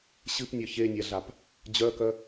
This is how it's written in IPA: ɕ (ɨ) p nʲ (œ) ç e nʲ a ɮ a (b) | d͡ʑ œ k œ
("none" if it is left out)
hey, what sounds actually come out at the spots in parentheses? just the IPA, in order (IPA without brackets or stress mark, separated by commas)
ɨ, œ, p